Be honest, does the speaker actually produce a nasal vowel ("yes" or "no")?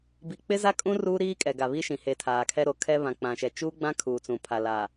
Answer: yes